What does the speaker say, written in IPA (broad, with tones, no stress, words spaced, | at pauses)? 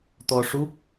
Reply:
t̪ɔ˧ʂu˦˥k̚